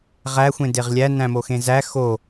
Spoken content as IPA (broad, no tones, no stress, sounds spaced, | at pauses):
ʁ æ xʷ ẽ d e ʁ lʲ æ n æ̃ m o x ẽ z æ x o